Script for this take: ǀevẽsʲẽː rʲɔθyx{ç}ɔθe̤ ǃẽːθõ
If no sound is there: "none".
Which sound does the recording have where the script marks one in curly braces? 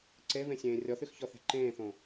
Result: ç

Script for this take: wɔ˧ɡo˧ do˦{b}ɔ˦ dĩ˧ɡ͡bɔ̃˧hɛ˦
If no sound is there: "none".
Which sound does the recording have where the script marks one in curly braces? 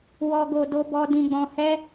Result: b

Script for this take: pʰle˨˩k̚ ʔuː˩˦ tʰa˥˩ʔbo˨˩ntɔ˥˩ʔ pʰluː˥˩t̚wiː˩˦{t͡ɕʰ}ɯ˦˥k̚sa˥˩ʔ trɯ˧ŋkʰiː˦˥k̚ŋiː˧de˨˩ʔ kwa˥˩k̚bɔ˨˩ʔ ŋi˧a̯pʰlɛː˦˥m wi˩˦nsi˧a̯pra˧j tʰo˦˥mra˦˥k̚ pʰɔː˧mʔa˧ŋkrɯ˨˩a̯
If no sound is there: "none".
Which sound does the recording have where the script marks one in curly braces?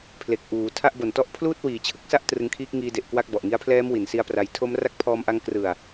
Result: t͡ɕʰ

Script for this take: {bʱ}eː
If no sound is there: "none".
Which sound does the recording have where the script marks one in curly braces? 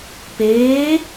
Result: p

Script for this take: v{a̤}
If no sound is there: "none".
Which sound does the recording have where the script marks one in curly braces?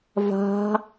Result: a̤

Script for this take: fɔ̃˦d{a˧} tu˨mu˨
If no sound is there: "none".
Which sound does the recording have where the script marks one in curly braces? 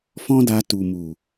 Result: a˧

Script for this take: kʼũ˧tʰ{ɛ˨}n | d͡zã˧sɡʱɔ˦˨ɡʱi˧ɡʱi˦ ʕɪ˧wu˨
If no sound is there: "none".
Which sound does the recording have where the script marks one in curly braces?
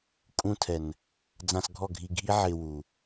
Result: ɛ˨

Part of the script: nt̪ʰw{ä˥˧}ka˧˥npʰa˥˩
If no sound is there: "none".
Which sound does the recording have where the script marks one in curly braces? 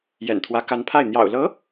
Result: ä˧˥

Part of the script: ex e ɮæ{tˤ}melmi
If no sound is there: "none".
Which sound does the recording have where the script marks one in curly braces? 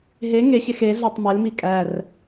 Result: tˤ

